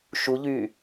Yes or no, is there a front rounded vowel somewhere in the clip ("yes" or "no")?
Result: yes